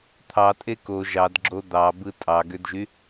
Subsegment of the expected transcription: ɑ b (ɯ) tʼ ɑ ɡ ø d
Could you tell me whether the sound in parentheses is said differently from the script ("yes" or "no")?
no